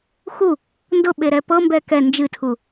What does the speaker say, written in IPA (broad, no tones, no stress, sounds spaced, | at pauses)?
x u | n d ʊ ɓ e ɾ ɛ p ɤ m b ɛ k ɛ n d͡ʒ ɨ tʰ u